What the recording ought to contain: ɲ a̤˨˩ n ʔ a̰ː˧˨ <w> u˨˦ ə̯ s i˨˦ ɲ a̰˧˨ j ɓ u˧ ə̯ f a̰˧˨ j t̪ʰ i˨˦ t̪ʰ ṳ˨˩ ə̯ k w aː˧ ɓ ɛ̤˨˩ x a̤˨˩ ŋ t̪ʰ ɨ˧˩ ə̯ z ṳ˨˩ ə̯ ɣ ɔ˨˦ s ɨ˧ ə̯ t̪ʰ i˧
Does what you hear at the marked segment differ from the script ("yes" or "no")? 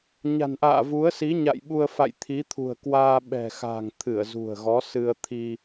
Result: yes